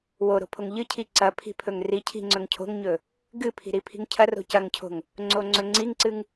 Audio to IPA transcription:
w o ɾ o̤ pʰ o ŋ ʎ ɨ cʰ i ǀ ɐ pʰ i̤ pʰ ɵ ŋ r i cʰ i̤ ŋ͡ǀ ɵ ŋ cʰ o̤ ŋ ɲ ɵ | ɡ ɨ pʰ i̤ ɾ i pʰ i̤ ŋ cʰ ɐ r o̤ c ɐ ŋ cʰ o̤ ŋ | ŋ͡ǀ o ŋ͡ǀ ɵ ŋ͡ǀ i ŋ ǀ ɨ ŋ

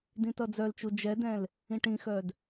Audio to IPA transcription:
d ĩ t ʌ d͡z œ l t͡ʃ u d͡ʒ ɛ d ɛ̃ l | ĩ ʈ ĩ x œ d

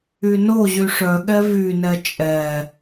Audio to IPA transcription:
y n o ʑ y ʂ œ ɠ ɛ v y n ɛ t͡ʃʼ ɛ

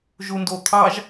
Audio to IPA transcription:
ʒ u n d o t̪ʰ ɑ ʒ

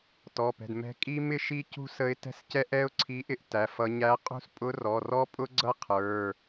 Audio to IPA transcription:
t ɔ˩˧˩ p ɛ̤˩˧˩ d m ɛ̤˧˥ kʼ i˥ m ɪ˥ ʃ i˥ c ṳ˥ s ə˧˥ ɪ̯ t ɛ̤˥ s c ɛ˥ ʔ ɛ˥ ʊ̯ ǀʰ i˧˥ ʔ ɪ˥ ʔ t æ˩˧˩ f ʌ˧˥ ɲ æ˧˥ qʼ ṳ˥ s pʼ ʊ˧˥ r ɔ˩˧˩ r ɔ˥ pʼ ʊ˥ ɡ͡ǀ ʌ˥ qʰ ə˞˩˧˩

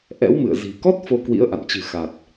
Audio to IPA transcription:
ʔ ɛ̰˧˥ w m ɨ̰˧˨ ə̯ z i̤˨˩ k ɔ˦˥ t̚ f o˧ k w ḭ˧˥ ə̯ ʔ a̰˧˨ n t͡ɕ ɨ̤˨˩ x a˨˩ t̚

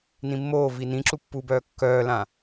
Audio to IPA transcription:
n ĩ mː oː v i n ĩ ǁ u pː u b œː kː œː l ã

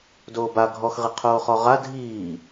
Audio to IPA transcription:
d oː b a ɡʱ ɔ x ʁ i qʰ oː χ ɔ ʁ a dʱ iː

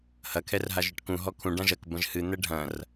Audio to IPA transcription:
h ɐ kʰ ɛ r ɦ a ʒ ɨ ʈ k ũ ɦ ɔ kʰ ũ ɖ ã ʒ ɐ k b ɐ̃ ʒ h ɨ n̪ ɛ ɖʱ ɐ̃ r

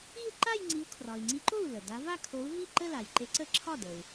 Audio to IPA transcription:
i˥˧ u̯ ǃ a˥˧ j ŋ͡ǀ i˨˥ u̯ kʰ r ɒ˩ i̯ ŋ͡ǀ i˨˥ ǃ o˥˩ u̯ l ə˩ d a˨˥ v a˥˧ kʰ o˨˥ u̯ v i˥˩ ǃ ə˥˧ l a˩ j ǃ e˨˥ ǀ ə˥˧ ǁʰ ɒ˥˩ d ə˩ u̯

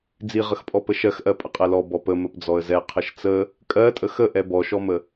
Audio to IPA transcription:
d͡z i ʁ ə x pʼ ɔ p ə ʃ ɜ x ʔ ɜ pʼ ə qʼ ɛ l ɔ b ɔ p ə m ə p d͡z ɔ ə̯ z ɛ qʰ ə ʃ t͡s ə | kʼ ɜ tʼ ə x ə ʔ ɛ b ɔ ʃ ɔ m ə

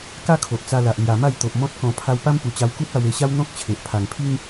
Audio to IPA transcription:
k a˦ kʰ o˨ ʔ t͡s a˧ l a˨ ʔ l j a˨˩ m a˥˧ j t̪ o˨ ʔ m ɔ̃˦ t̚ k ɔ̃˧ pʰ a˧ w p a˦ m p u˨˩ t͡ɕ a˧ w k u˦ t̚ a˧ w e˧ ɕ a˦ w n̪ ɔ̃˦ k̚ t͡ɕʰ e˨ ʔ pʰ a˨˩ ŋ pʰ i˦ ŋ

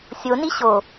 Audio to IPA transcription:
sʲ o n i ɕ o

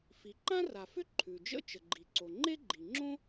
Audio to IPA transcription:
f i˩ ǃ ã˥ r a˩ f ʏ˥ ǃʰ ʉ˩ d͡ʒ ə̰˥ t͡ʃ ə˩ ɡ͡ǃ i˩ ǀ o˩ ŋ͡ǃ e˥ ɡ͡ǃ i˩ ŋ͡ǁ õ˥

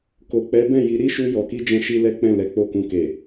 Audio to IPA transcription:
k o˨ k͡p ɛ˨˦ b ɛ̃˦˨ j i˨˦ ɾ i˦ ʃ u˧ j ɔ˨ k i˧ d͡ʒ ɛ̃˧ ʃ i˧ l ɛ˦ k͡p ɛ̃˦˨ l ɛ˨˦ k͡p o˦˨ k ũ˧ k e˨

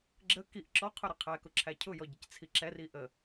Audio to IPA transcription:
ɡ͡ǁ ə k i ʔ ǁ ɔ qʰ ʊ ɾ ɪ qʰ æ k ʊ ǁʰ æ cʰ ʊ j ɔ ɟ ɪ c t͡sʰ i ǁ ɛ r i ʔ ə

